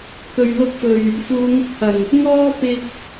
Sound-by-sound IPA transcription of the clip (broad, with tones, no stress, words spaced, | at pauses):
kɵ˨ɥ lʊ˧k̚fɵ˨˩ɥ | fuː˨˧ŋʊ˧k̚hɐ˨˩ŋ | ŋɔː˥pɪ˧k̚